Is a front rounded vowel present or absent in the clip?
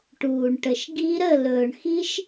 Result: absent